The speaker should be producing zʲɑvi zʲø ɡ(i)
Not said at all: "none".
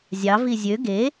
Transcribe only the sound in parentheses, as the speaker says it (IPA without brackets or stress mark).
e